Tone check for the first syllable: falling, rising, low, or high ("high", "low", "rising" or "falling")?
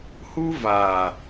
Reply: high